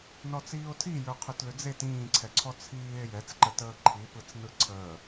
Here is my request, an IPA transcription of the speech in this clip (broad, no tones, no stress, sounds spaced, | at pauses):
n ɔ t͡s iː o̯ tʰ i j ə˞ qʰ ʏ t l ʏ d͡z e t ĩː ǀʰ ɛ ǀʰ ɔ t͡sʰ iː e̯ j ɛ t͡s ǃ ə t əː ǃʰ i p ɯ t͡s n ɯ ǀʰ əː